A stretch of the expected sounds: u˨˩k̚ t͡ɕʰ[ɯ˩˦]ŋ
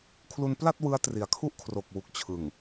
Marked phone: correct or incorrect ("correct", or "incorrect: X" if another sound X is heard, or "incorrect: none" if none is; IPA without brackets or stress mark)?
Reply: incorrect: ɯ˨˩